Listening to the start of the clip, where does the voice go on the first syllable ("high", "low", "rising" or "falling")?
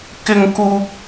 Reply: high